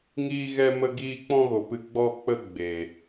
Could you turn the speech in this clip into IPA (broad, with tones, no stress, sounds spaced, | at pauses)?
ŋ iː˦ ɣ ɛ˦ m ə˦ ɡ iː˦ k͡p ɔ̃˦ ɣ o˨ p ɨ˧ ɡ͡b ɔ˦ k͡p ə˦ ɡ͡b e˨